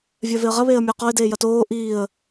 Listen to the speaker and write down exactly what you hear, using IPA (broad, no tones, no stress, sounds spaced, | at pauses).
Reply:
vʲ œ v e ə̯ ʁ ɐ β eː ə̯ mʲ ʊː q ɔ ɪ̯ d eː j ɐ t oː ʔ iː ə̯